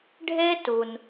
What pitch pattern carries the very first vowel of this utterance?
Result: high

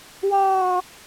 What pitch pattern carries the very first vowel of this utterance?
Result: high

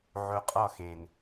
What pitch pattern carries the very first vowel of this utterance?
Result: low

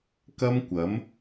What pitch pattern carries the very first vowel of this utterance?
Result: high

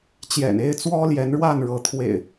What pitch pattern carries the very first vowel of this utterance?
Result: low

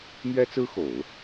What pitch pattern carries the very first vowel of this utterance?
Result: high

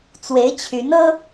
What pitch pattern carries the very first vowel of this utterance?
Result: rising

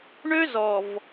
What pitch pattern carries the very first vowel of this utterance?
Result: high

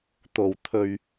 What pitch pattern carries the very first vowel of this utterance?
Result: low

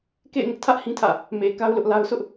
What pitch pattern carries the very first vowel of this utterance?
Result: falling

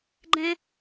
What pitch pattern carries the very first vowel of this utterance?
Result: high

